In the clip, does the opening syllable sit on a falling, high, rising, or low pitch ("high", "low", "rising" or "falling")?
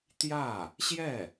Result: falling